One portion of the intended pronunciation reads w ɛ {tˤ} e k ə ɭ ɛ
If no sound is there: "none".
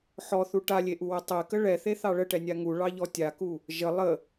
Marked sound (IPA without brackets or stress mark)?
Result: tˤ